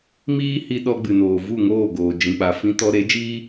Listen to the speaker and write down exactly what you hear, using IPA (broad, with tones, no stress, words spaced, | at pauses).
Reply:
miː˦hi˧ ɗɔ˧ɡ͡bɨ˨noː˨ vu˦˨ŋoː˦˨ɡoː˨ d͡ʒĩ˨k͡pa˨fĩ˧ tɔ˧ɾe˨˦d͡ʒiː˦